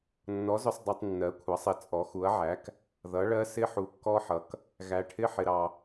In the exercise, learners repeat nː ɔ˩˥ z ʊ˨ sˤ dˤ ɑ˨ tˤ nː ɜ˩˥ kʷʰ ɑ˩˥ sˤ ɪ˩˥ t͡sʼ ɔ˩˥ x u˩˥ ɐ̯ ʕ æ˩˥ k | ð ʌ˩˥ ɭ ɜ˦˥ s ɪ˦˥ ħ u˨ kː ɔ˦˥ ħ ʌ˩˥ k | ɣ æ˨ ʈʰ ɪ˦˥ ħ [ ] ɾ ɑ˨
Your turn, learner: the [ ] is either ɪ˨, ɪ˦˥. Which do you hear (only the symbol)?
ɪ˨